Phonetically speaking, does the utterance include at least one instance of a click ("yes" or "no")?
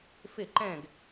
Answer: yes